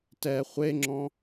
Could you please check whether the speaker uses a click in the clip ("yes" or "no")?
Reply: yes